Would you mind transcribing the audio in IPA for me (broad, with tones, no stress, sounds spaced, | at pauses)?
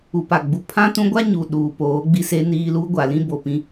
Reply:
u˨ p a˨ ɡ͡b u˨ pʰ ã˦ t ũ˦ ɡʷ a˦ ɲ u˨ ɗ uː˨ p oː˨˦ ɡ͡b i˦ s e˦ n iː˦ l u˦ ɡʷ a˨ l ĩ˦ b o˨ p ĩ˨